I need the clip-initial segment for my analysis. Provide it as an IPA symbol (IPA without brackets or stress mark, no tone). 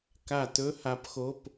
k